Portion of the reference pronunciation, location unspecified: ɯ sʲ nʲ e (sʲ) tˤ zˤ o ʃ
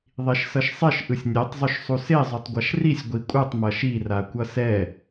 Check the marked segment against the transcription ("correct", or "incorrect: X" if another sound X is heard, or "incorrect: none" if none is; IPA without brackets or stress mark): incorrect: none